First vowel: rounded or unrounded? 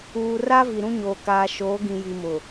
rounded